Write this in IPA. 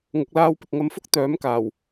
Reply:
ŋʊ˨k̚laː˧wpɪ˨k̚ ŋɐ˧mfʊ˥k̚ t̪œː˨˥mkaː˨˩w

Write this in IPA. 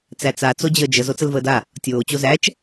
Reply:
t͡sæt͡sa t͡sod͡ʑəːd͡ʒəz ot͡səlvəːda | tʲoː t͡ɕozæt͡ʃ

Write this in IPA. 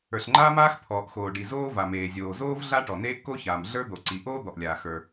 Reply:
ə˞˩ɬŋ͡ǃaː˥maː˥x pʰɔː˩ʔxoː˩ ɖi˩zoː˥va˩ meː˩zʲoː˩zoː˥v ɮa˥ʈɔ˩neː˥ʔ ko˥çaː˩mɮə˞˥ d̪o˩ǀi˩ʔoː˥ d̪ɔ˩ʔlʲaː˩ xə˞˩

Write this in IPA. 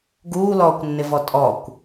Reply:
ɡuːlɔːkʷnːɪvɔ tʼɔkʷ

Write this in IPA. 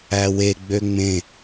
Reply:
æwe ɡ͡bøŋ͡mẽ

